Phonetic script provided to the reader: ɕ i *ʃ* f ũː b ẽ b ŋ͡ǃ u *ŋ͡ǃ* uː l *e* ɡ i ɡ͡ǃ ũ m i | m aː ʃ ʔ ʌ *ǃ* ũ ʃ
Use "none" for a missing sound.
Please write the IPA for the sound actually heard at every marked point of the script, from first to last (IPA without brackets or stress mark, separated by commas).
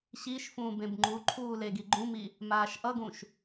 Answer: ʃ, ǃʰ, e, ɡ